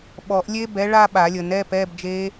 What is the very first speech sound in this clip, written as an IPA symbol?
ɓ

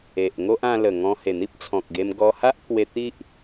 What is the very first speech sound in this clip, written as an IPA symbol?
e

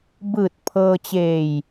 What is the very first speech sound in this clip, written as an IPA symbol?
b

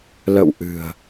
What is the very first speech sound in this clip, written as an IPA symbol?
l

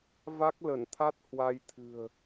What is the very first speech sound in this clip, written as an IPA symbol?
v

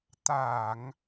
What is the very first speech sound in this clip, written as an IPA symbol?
t̪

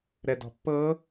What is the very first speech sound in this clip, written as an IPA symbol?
ɾ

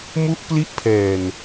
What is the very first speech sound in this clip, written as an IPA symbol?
m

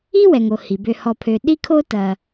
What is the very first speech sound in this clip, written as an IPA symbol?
i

